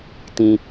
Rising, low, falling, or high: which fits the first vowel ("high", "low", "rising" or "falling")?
high